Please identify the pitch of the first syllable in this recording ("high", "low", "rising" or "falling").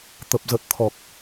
low